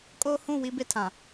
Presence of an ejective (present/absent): present